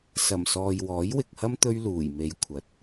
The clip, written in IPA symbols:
s ɐ˨˩ m s ɔː˨ j w ɔː˨˥ j w ɪ˨ k̚ h ɐ˥ m t̪ ɵ˥ ɥ l uː˨˩ j m e˨˧ j kʷʰ ɐ˨ t̚

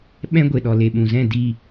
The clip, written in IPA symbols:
ɓ ɛ̃˦ ɡʷ e˨ ɗ ɔ˨ l e˨ ɓ ũ˨ z ɛ̃˦˨ d i˦˨

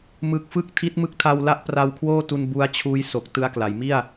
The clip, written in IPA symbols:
m ɯ˨˩ k̚ f ɯ˥˩ k̚ tʰ i˦˥ t̚ m ɯ˦˥ k̚ tʰ a˧ w l a˥˩ ʔ p r a˧ w kʰ w oː˥˩ t u˧ n b u˦˥ a̯ t͡ɕʰ uː˦˥ j s o˨˩ k̚ t ɯ˦˥ a̯ k l a˩˦ j m i˥˩ a̯

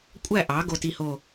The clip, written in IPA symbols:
kʷʼ æ˥˨ ʔ ɑ˩˥ ɡ o˥˨ t i˥˨ h o˥˨

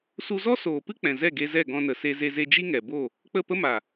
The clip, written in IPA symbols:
s u˧ z ɔ˦ s oː˨ p ɨ˦ k͡p ɛ̃˨ z ɛ˦˨ ɡ e˧ z ɛ˦˨ ɡ ɔ̃˧ n ə˨ s e˧ z e˧ z e˧ d͡ʒ i˦ ŋ ɛ˨ b o˦˨ | k͡p ə˦˨ p ə˦ m a˨

